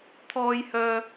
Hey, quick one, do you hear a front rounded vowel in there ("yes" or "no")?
yes